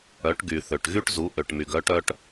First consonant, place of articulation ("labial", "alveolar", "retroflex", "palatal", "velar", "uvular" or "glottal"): retroflex